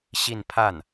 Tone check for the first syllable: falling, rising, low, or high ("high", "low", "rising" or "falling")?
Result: falling